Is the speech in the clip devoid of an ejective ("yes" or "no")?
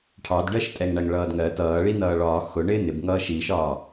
no